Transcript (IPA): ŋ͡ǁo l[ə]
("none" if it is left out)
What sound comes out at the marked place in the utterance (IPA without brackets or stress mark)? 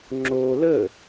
ə